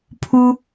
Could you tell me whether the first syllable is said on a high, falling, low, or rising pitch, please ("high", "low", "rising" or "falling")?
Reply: high